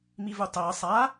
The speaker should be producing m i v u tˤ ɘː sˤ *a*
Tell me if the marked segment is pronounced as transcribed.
yes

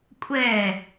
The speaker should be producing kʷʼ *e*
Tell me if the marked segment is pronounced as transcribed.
no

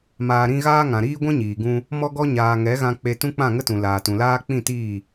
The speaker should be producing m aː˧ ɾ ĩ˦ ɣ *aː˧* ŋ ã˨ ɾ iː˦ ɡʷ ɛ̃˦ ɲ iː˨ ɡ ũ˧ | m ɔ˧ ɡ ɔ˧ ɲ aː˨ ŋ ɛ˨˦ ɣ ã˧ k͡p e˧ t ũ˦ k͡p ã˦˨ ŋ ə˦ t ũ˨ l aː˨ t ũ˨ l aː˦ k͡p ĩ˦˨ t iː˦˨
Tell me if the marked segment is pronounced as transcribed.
no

